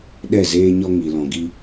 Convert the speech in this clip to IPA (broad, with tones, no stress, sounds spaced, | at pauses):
ɗ ɛ˦˨ z eː˦ ɲ ɔ˦ ŋ i˧ l ɔ̃˧ ɡ i˦